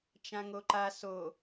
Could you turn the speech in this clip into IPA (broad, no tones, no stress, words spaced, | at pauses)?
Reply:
t͡ʃãŋoǃa so